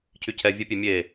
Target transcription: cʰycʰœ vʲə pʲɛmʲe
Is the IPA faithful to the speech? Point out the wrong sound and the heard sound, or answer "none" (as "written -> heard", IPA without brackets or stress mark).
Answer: œ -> ɛ